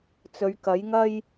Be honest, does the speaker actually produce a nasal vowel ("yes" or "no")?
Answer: no